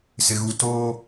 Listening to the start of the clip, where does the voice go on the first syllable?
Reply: low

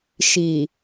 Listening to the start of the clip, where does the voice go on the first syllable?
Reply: low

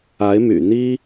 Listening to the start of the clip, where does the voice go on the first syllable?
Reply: rising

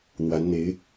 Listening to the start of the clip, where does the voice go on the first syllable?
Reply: rising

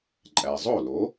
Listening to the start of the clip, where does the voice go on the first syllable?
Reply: low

